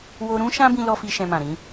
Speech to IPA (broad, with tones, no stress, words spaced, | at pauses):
wo˧ɾũ˦ʃã˦ bĩ˦lɔ˦ fi˦ʃɛ̃˧mã˨ ɾĩ˨˦